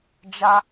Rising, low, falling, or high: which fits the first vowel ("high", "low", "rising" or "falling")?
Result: high